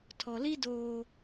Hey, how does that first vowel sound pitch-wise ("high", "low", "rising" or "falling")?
low